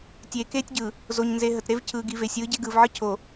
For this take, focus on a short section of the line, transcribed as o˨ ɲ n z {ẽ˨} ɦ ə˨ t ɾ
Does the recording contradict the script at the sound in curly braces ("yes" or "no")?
yes